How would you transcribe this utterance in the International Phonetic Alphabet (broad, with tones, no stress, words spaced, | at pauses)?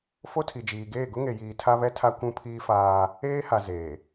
fo˦tʰi˨d͡ʒiː˨ɡeː˦˨ ɡʊ˦ŋe˨jiː˨ tʰa˦βɛ˦tʰa˦ kʷũ˦pʰiː˦faː˦ | eː˦ha˨zeː˨